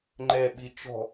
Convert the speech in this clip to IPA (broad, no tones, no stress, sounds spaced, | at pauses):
ŋ͡ǃ ɛ ɓ i t͡ʃ ɔ̤